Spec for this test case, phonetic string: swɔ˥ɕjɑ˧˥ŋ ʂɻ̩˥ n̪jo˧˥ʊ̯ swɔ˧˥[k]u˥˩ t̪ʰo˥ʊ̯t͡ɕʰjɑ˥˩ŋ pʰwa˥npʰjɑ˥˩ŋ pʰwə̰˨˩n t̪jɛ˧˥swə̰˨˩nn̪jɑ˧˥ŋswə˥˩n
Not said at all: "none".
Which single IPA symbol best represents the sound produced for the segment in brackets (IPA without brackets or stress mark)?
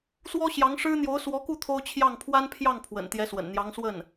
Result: k